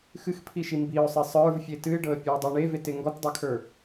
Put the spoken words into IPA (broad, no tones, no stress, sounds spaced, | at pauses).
x ɨ x pʰ i ʃ i m b i ʊ̯ sˤ i sˤ ə˞ v fʲ e t ɨ ɪ̯ ɖ ɤ ə̯ pʲ ə˞ ʊ̯ dˤ i ɳ e v e t e ŋ ɡ ɔ t dˤ ɤ kʰ ə˞